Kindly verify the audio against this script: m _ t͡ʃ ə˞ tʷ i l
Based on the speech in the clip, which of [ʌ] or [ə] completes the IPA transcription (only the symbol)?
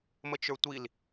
ə